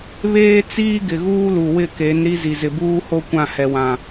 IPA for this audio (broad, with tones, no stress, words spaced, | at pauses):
βeː˦t͡siː˦ ɡɪ˨ ɣuː˦lu˨wɪ˦˨ke˨˦n ɾi˦zi˨ zɪ˨buː˦ho˦ kʷã˦˨hɛ˨wã˨